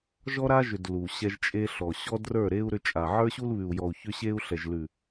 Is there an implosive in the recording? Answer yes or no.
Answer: no